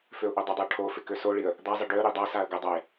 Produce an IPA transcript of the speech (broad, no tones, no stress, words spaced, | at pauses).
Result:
føʊ̯ʔodˤədˤɪə̯ ʈʰofɪ køsoɭiə̯ | d̪azˤə ɖøə̯ ɾidˤasaə̯ ɡədˤaɪ̯